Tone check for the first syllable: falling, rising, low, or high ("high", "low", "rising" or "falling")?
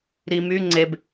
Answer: low